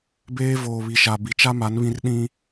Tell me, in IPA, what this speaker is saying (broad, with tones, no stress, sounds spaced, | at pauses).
b eː˦ v oː˨ β i˨ ʃ a˨ b i˨ t͡ʃ a˦ m a˨˦ n β ĩ˦ r ɗ ĩ˦